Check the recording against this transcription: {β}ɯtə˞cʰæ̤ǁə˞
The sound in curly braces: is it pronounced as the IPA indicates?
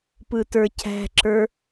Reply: no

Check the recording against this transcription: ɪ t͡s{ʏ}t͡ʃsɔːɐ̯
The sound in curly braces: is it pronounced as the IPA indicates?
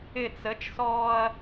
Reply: no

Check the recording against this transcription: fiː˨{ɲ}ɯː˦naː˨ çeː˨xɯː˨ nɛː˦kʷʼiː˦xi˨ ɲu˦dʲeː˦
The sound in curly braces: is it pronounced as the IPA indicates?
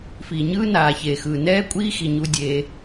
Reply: yes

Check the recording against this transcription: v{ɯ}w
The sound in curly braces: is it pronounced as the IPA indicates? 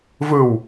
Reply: yes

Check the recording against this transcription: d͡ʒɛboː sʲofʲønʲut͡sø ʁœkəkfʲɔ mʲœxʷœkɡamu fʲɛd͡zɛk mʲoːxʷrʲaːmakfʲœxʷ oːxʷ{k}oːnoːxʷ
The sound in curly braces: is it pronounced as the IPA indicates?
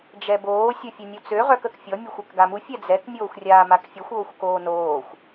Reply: yes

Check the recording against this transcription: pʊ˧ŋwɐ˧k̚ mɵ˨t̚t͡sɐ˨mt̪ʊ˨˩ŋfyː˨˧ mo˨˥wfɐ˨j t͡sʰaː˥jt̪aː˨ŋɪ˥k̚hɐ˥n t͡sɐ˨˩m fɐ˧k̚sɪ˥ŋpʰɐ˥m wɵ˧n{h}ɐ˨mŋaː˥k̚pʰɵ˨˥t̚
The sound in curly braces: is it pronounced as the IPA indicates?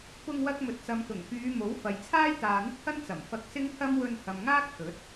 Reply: yes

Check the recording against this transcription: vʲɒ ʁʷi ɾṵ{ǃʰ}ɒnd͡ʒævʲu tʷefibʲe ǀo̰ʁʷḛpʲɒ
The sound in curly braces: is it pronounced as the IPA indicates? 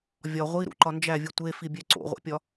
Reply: no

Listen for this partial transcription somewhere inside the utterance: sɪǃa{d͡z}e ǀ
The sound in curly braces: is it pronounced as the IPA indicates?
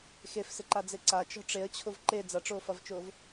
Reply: yes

